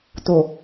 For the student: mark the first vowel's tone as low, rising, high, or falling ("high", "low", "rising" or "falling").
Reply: low